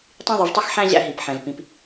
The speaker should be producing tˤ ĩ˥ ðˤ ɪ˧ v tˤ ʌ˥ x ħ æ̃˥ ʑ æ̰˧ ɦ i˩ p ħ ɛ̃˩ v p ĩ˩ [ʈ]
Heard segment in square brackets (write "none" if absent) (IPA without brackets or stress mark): p